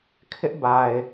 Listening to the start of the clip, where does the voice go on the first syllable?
high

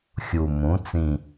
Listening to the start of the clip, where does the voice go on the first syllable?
low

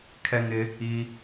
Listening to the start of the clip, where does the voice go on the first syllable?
high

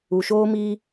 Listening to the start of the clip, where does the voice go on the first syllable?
low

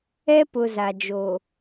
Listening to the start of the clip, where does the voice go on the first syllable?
high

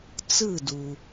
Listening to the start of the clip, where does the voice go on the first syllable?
falling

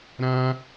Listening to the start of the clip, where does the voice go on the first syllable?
high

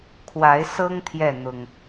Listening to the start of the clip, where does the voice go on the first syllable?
rising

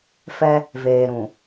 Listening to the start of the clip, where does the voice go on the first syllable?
high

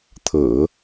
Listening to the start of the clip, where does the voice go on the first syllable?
low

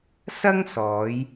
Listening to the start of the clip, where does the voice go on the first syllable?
high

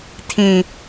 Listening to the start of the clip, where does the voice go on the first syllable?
low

